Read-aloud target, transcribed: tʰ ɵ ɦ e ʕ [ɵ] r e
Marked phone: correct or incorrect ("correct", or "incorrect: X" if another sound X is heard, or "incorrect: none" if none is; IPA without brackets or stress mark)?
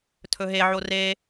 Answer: incorrect: o